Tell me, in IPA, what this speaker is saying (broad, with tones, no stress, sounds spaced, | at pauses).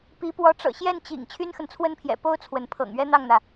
p i˧˥ p w ɔ˧˥ ʈ͡ʂ ɤ̰˨˩ ɕ j ɛ˥˩ n t͡ɕ ḭ˨˩ ŋ t͡ɕʰ y˥ n x ə˨ n t͡sʰ w ə˥ n pʰ j ɛ̰˨˩ p o˥ ʊ̯ t͡sʰ w ə˧˥ n pʰ ɤ̰˨˩ ŋ ɥ ɛ˥ n̪ ɑ˥˩ ŋ n̪ ä˩